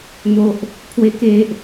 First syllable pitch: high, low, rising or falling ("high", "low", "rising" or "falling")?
high